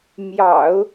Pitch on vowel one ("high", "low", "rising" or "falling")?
low